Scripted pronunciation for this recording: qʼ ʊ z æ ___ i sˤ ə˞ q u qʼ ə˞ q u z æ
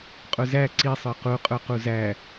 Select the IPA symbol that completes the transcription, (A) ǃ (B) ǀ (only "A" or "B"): B